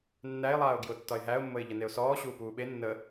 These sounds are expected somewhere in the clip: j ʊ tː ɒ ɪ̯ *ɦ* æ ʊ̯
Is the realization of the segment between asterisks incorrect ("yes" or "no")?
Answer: no